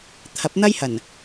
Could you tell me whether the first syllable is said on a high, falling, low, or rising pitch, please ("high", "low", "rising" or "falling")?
rising